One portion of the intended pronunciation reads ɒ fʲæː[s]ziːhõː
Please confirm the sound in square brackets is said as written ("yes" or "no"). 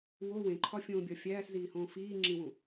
yes